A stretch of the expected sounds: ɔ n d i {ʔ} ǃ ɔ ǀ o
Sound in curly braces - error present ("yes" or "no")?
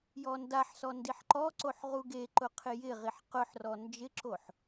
yes